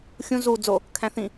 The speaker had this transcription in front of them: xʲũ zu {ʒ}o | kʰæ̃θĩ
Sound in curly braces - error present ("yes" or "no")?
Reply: yes